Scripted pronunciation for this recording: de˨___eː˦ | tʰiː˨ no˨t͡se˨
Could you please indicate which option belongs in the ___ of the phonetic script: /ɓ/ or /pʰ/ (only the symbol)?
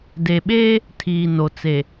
ɓ